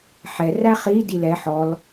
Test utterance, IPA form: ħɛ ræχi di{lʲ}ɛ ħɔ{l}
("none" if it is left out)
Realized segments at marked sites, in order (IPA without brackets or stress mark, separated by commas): l, l